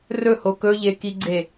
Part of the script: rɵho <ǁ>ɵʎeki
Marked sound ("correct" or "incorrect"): incorrect